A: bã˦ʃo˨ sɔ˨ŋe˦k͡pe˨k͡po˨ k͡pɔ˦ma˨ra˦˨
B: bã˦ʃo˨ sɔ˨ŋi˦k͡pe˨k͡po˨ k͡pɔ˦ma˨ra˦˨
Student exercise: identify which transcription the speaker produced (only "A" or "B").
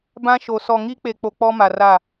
B